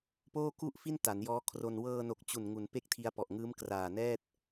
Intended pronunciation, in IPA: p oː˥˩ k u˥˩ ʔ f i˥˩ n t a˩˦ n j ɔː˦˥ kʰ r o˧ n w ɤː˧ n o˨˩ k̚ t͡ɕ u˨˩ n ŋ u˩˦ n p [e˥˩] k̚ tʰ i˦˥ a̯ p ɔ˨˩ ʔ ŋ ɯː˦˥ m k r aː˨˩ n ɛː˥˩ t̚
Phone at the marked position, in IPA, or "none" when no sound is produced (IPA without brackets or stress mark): e˥˩